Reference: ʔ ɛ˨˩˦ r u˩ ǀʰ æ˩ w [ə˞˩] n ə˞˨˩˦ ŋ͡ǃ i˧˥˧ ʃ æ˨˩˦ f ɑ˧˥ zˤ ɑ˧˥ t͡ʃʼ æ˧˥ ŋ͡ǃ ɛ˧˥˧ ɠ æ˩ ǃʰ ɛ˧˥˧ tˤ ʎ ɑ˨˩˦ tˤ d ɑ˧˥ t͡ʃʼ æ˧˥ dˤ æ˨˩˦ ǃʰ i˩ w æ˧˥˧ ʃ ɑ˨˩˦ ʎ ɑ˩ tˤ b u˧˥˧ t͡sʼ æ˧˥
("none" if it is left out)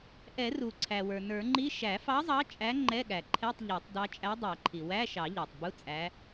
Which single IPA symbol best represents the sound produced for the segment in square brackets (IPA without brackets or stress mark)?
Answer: ə˞˩